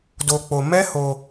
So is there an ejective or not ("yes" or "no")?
no